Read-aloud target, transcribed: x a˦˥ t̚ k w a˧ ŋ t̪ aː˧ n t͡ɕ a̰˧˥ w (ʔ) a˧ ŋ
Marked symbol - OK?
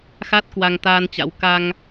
no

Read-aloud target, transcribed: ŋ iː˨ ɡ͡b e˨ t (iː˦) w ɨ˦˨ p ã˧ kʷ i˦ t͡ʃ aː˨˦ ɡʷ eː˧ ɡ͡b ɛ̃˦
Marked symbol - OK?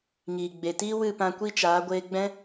yes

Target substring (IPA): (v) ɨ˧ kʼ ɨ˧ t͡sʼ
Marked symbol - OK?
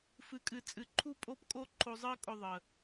no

